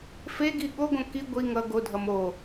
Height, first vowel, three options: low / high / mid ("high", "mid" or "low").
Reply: mid